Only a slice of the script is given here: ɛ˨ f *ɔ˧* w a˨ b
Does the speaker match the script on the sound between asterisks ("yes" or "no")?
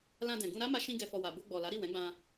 no